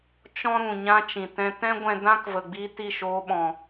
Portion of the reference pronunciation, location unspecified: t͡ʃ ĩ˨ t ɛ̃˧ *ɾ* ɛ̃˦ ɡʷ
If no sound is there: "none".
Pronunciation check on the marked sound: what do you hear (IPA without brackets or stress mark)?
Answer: t